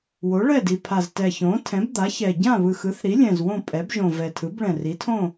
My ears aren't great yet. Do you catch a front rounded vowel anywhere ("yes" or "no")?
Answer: no